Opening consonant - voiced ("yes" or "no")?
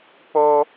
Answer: no